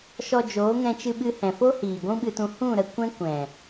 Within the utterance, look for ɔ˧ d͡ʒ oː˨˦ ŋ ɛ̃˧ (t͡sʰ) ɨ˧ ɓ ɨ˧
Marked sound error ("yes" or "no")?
yes